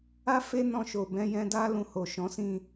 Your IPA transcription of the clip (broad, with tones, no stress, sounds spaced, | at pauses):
a˦ f e˦ n ɔ̃˧ ʃ o˨ b ɛ̃˨˦ j ɛ̃˧ d a˦ l ũ˧ h o˨ ʃ ɔ̃˨˦ s ĩ˦˨